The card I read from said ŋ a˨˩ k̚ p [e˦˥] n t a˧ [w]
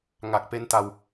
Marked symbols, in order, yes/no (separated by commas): yes, yes